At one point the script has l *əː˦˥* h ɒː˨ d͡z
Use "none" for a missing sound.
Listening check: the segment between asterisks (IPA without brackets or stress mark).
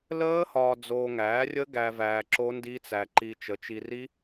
əː˦˥